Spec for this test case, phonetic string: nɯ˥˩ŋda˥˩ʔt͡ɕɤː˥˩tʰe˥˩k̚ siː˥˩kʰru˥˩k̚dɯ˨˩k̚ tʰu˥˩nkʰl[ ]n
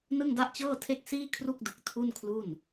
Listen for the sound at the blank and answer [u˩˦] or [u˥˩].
u˥˩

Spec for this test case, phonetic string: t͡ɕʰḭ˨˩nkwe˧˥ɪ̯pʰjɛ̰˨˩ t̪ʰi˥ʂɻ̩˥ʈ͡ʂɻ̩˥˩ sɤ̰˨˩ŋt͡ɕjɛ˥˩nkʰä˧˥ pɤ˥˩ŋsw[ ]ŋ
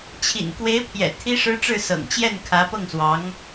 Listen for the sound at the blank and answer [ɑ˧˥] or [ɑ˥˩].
ɑ˧˥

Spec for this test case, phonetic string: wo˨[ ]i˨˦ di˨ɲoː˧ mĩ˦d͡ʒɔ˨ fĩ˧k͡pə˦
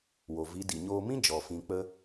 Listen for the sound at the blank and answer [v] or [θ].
v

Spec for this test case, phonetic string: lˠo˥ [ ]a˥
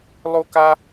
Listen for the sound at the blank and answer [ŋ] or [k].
k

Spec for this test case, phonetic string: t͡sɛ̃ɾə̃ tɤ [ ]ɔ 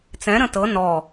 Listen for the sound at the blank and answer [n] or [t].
n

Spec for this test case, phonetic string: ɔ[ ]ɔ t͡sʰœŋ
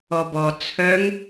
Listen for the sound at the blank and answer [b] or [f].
b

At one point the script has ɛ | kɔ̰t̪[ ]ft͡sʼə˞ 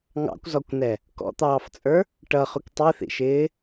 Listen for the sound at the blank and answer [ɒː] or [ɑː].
ɑː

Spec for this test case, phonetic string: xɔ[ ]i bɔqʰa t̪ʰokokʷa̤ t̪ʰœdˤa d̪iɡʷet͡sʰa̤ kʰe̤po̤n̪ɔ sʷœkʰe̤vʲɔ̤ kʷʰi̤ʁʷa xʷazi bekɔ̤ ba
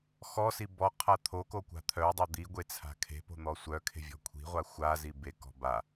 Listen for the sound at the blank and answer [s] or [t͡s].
s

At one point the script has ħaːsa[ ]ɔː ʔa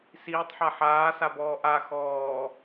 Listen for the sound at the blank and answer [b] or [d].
b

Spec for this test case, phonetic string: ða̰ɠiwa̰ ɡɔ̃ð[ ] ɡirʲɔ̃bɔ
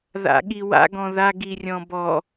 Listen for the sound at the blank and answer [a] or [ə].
a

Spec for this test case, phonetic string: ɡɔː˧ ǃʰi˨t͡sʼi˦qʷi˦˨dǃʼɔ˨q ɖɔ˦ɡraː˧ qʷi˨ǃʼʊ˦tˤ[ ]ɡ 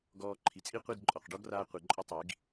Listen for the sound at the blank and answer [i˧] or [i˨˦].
i˨˦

